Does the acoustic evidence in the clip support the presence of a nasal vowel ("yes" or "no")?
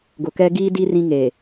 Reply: yes